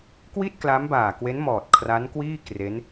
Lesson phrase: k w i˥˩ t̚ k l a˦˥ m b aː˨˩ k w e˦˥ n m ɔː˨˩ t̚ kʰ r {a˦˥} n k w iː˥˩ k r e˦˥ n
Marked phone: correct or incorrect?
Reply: correct